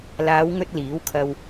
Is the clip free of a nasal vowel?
yes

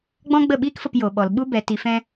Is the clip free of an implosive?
no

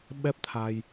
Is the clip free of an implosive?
no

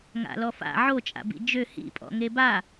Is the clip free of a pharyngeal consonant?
no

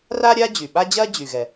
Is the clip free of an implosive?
no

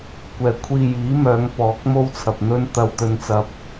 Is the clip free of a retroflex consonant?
yes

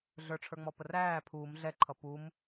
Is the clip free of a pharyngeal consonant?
yes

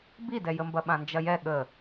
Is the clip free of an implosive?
no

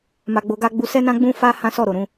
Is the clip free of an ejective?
yes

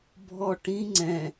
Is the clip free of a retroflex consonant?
no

